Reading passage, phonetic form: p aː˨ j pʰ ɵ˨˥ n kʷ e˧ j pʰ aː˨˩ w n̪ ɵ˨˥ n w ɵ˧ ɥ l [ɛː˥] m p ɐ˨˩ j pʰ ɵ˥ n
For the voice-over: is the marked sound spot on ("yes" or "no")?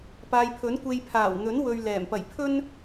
no